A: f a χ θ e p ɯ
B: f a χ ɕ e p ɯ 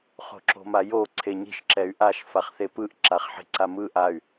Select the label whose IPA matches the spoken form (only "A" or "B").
A